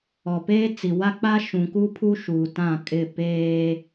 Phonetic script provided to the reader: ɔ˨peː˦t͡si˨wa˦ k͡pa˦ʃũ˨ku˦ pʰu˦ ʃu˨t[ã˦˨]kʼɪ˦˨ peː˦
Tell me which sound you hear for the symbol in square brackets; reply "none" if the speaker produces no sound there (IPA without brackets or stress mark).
ã˦˨